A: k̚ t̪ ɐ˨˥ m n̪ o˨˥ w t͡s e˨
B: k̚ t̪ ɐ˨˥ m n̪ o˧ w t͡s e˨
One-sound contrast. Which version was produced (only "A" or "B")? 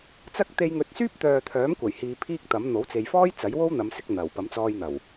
A